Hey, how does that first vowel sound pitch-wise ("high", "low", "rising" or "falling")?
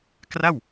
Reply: falling